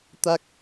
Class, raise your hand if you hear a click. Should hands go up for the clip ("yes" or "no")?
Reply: no